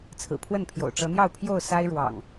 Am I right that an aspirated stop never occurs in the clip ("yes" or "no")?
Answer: no